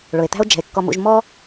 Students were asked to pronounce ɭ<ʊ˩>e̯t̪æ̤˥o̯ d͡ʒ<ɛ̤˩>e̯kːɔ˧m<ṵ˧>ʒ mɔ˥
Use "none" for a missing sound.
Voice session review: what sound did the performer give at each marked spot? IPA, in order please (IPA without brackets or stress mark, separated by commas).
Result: ʊ˩, ɛ̤˩, ṵ˧